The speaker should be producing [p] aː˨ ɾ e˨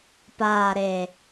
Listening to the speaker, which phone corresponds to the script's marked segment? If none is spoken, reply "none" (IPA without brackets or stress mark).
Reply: p